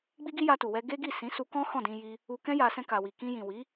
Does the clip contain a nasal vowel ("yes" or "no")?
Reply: yes